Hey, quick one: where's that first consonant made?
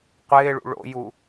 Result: uvula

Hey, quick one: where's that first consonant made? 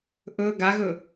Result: throat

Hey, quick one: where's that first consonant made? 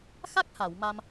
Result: velum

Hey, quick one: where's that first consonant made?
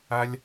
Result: tongue tip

